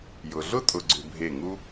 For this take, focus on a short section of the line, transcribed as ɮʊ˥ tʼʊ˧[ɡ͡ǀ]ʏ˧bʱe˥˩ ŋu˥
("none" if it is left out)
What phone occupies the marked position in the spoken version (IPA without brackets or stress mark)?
ɡ͡ǀ